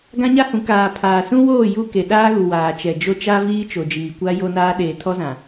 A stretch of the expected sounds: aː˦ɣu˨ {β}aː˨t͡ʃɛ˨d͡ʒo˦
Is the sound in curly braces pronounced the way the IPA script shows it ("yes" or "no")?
no